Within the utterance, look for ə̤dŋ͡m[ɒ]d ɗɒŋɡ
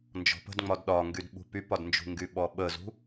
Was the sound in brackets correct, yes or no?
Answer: yes